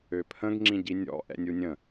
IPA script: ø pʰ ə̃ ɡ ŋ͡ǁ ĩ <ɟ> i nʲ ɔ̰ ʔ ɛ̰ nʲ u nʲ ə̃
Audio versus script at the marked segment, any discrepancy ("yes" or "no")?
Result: no